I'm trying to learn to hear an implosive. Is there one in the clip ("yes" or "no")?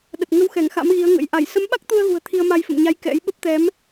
yes